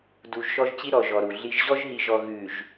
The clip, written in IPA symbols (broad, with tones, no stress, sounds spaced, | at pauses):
d u˨ ʒ ʃ ɔ˦ ʒ t͡ɕ i˦ ɾ ɔ˨ ʒ ɔ˨ ɾ u˨ ɮ i˨ ʒ ʑ ɔ˦ ʒ ɦ i˨ ʒ ɔ˨ ɣ ʉ˨ ʒ